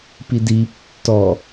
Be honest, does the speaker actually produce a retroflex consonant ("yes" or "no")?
no